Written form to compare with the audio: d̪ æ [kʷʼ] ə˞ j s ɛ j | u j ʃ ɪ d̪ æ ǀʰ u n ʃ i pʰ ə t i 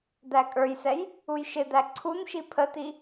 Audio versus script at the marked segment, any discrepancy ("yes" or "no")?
yes